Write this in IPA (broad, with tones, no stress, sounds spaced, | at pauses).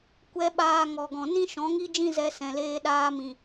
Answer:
kʷ ɛ˧ ɓ aː˧ ŋ ɔ˨ ɡ ɔ̃˨ n ĩ˦ ʃ ɔ̃˨˦ ŋ i˦ d͡ʒ ĩ˦ z ɛ˧ s ɛ̃˨ l eː˧ ɗ aː˧ m ĩ˨